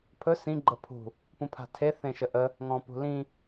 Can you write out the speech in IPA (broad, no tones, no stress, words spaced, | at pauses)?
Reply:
pʰɵ sĩ ɡ͡ǃəpʰṳ | pũpʰa̤tʰe θẽʃəʔə | ŋɔ̃pṳlĩ